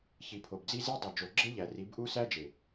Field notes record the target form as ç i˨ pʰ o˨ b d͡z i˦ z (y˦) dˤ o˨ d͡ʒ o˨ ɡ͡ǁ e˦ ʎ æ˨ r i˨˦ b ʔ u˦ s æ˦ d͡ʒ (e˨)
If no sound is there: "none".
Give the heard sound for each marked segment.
i˦, e˨

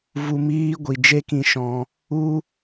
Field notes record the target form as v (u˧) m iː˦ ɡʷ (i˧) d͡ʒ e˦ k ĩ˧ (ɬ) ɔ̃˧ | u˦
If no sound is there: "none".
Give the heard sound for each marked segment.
u˧, i˨, ʃ

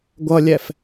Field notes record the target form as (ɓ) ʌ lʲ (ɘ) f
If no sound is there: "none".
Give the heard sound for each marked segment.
ɡʷ, ɛ

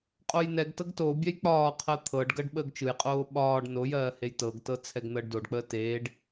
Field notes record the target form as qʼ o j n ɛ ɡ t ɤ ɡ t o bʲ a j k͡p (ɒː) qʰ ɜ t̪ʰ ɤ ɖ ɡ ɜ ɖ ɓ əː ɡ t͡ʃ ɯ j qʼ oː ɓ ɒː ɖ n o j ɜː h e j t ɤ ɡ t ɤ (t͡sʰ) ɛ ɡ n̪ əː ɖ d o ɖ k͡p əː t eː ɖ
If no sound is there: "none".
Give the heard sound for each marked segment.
ɒː, t͡sʰ

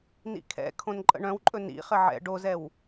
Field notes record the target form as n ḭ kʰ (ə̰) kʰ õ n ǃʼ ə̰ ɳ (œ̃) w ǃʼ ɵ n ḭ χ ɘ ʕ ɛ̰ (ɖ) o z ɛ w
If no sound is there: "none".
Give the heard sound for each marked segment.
ɛ̰, œ̃, ɖ

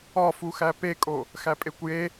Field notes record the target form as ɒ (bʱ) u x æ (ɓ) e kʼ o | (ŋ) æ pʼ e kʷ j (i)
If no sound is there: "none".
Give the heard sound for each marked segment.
f, p, x, e

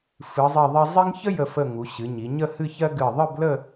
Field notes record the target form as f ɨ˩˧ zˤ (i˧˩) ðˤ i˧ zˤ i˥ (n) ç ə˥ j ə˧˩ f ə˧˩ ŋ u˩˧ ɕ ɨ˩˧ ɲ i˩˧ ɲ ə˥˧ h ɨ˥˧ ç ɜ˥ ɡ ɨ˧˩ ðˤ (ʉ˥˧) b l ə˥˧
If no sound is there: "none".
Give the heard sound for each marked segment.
i˧˩, ŋ, ɨ˥˧

